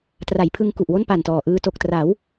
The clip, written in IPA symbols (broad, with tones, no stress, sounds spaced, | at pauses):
t r a˩˦ j pʰ ɯ˧ ŋ k u˨˩ ʔ w o˥˩ n p a˨˩ n t ɔː˨˩ ʔ ɯː˧ t o˨˩ k̚ t r a˩˦ w